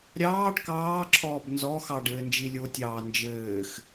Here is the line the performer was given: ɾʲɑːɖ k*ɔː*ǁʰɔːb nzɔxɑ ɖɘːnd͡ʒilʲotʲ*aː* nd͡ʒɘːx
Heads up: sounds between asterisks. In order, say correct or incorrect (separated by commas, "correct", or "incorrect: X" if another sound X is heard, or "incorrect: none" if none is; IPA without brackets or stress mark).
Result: incorrect: ɑː, incorrect: ɑː